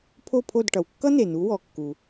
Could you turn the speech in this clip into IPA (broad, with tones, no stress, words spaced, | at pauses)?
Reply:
pʰo˥˩pʰo˥˩d ʈʌ˩wkːʌ˥n̪e˩n̪u˩˥ wɔ˩kːu˩